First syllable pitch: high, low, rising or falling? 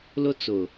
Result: high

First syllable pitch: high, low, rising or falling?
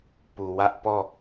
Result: low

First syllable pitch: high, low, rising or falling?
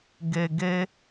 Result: low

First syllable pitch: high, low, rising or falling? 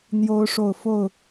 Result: rising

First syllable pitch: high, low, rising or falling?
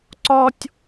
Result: high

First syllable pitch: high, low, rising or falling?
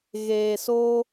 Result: low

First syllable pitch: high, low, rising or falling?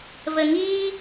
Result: low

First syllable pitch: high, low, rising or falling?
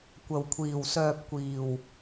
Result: low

